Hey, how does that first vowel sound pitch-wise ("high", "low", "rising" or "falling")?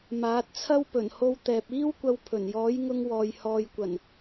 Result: rising